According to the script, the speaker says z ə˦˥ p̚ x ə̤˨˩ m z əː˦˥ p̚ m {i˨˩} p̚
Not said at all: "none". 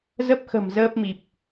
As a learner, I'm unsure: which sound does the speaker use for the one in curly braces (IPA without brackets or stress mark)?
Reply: i˨˩